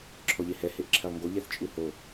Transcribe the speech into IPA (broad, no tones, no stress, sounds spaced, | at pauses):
ǁʰ ɔ ʎ e h ɛ h e ʔ ǁʰ ɛ lˠ ŋ ɡ o ʎ ɛ θ t͡ʃʼ u h o